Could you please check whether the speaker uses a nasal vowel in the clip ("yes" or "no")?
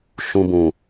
yes